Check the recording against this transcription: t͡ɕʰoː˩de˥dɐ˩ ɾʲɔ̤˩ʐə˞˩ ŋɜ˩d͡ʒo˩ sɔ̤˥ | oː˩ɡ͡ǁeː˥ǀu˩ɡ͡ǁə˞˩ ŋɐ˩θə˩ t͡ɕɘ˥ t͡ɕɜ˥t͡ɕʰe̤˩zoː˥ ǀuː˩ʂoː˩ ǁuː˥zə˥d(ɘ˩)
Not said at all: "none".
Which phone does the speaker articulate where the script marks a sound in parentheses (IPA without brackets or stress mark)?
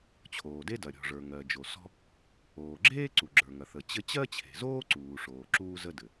ɘ˩